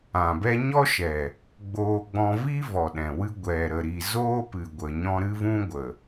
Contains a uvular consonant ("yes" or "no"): no